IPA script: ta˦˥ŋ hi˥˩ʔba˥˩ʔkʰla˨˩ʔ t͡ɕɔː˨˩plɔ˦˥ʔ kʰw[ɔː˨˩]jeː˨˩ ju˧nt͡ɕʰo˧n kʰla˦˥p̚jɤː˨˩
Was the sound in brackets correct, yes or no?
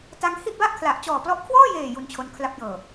no